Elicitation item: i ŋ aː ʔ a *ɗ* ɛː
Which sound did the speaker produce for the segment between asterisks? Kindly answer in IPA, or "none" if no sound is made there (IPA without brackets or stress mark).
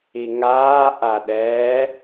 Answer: ɗ